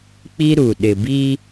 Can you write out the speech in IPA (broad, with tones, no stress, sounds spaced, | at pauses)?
k͡p i˦ ɾ u˨ ɗ ɪ˨ b i˦